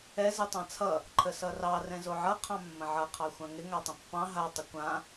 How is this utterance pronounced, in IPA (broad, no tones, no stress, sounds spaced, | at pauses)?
ɛ z ɯ tˤ ɑ̃ t͡sʰ ʌ | ǃʰ ə s ʌ r ɑ r ɛ̃ z o ʕ ʌ qʰ ɑ̃ mː ə̃ ʕ ʌ qʰ ɑ xʷ ã ŋ ɪ ŋ a tˤ ə̃ pː ɑ̃ ɦ a tˤ ə kʷ ã